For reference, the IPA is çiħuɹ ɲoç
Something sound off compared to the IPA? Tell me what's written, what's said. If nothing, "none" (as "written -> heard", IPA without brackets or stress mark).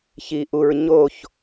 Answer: ħ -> ʔ